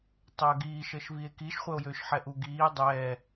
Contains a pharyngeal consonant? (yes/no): yes